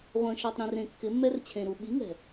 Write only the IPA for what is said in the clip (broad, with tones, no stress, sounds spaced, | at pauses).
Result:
ʁʷ ə̃ː˨ ʃ ɔ˨ tˤ ɾ ĩ˨ r ẽ˨ kː ɪ˨˦ mː ɛ˦ r t͡ɕʰ ẽ˨ ɾ u˨ ɓ i˨˦ ŋ ɛ̤˨